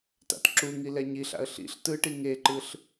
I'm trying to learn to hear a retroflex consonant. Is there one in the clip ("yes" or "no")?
yes